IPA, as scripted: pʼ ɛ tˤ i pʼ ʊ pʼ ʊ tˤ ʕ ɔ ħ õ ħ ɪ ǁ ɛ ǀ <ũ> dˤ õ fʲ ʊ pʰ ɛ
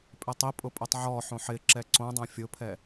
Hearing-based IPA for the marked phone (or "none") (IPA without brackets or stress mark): õ